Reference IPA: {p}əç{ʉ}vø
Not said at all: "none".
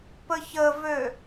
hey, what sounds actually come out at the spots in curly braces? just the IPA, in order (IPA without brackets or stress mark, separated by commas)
p, ə